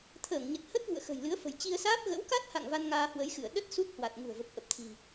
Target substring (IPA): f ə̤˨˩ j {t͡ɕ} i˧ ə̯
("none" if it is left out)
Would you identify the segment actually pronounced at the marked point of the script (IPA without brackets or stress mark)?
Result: t͡ɕ